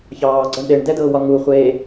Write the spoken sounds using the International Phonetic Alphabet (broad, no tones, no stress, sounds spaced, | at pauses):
ç ɑː ɡ͡ǀ ɒ ɳ ɗ e ɳ d ɛ d ɤː w ɒ ŋ u χʷ eː